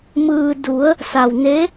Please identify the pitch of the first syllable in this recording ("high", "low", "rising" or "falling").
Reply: low